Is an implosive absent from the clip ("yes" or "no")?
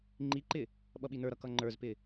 no